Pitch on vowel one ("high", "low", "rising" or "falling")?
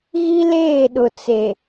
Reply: high